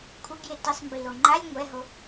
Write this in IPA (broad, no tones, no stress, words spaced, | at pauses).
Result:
kʷʰɪɡje tisˤmbilo ŋ͡ǃalʲ ŋʷɛɦo